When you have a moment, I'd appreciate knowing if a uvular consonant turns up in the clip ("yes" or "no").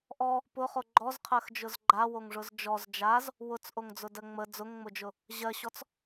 yes